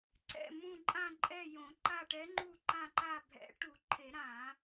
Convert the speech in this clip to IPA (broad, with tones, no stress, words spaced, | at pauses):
ǀɛ̰˦˨ mũ˦˨ ǃʼã˦˨ǃʼɛ˦˨ jõ˨˩˦ǃa˦˨ʈɛ˧˥ŋ͡ǃu˦˨ ǃã˦˨ǃa˦˨ bʱɛ̰˨˩˦ʈu˨˩˦ǃʰe˨˩˦ ɾã˨˩˦